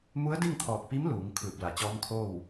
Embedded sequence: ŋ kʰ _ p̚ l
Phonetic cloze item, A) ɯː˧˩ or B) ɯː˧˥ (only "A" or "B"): A